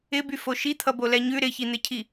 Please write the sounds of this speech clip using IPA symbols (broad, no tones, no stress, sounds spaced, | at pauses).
ɪ b y f o ʃ i t̪ʰ ʌ b o l ɛ ɲ ʉ ɾ ɪ ç i n̪ ɪ cʰ i